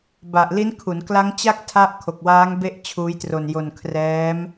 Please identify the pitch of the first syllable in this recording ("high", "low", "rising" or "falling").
low